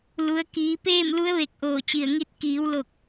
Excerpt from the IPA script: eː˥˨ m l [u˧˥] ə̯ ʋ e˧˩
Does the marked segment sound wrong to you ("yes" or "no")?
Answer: no